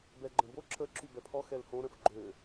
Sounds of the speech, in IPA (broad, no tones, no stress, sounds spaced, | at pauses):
b ɛ ɡ͡ǃ ə̃ b o ǁ ə ǁ y b ɛ pʰ ɔ x ɛ l h õ ɾ ə̃ f ɡ͡ǃ ø